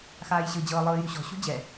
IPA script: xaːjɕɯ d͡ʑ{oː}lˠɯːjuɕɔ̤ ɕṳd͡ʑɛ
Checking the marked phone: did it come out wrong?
yes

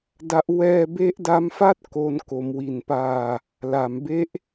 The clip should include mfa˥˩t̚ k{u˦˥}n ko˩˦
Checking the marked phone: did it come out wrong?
yes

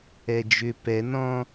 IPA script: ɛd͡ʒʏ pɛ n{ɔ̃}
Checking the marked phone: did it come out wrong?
no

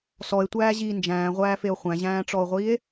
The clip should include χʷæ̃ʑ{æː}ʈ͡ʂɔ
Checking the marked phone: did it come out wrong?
yes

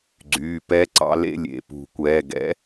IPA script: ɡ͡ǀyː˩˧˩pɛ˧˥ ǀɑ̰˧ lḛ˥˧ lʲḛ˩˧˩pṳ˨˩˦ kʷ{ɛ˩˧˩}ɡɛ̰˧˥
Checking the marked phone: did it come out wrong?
yes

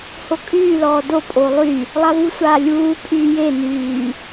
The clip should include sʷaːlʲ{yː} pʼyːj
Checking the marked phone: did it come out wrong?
yes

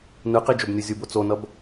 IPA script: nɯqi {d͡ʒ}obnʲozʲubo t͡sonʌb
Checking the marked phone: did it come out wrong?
no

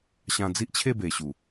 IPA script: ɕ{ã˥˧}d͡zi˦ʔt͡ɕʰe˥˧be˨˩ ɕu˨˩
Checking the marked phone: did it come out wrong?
yes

